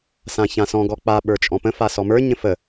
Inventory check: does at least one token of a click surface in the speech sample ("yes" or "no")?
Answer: no